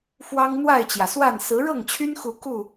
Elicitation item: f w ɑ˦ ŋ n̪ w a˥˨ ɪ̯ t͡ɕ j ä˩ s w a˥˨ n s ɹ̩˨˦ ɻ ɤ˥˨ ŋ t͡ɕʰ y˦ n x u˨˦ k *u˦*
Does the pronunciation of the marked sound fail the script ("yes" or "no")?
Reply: yes